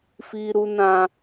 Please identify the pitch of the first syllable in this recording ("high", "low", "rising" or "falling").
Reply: high